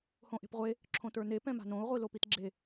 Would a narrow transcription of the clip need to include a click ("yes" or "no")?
yes